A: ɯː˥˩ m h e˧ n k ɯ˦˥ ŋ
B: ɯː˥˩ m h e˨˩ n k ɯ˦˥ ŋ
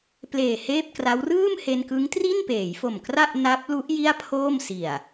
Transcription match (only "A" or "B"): A